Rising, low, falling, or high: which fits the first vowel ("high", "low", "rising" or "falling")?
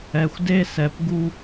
low